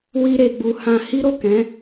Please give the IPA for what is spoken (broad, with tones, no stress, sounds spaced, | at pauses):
w i˦ ɾ e˧ ɡ͡b u˧ h ã˧ h i˦ ɾ o˦˨ k ɛ̃˨˦